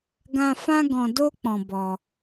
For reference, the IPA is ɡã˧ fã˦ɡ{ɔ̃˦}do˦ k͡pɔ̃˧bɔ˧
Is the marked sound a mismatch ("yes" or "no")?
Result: yes